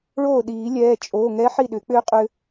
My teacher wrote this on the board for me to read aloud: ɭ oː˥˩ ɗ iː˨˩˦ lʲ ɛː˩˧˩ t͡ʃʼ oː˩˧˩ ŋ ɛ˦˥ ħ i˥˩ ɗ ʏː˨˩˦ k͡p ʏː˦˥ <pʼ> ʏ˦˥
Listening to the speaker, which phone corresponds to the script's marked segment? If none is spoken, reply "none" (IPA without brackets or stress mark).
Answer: qʼ